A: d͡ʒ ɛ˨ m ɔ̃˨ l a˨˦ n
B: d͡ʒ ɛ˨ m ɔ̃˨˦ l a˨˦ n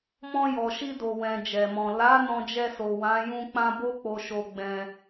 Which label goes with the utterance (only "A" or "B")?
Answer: A